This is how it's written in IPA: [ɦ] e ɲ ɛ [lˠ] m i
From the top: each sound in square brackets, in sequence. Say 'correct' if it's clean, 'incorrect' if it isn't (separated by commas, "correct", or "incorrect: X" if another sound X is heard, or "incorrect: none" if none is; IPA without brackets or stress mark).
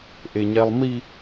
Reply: incorrect: ʔ, correct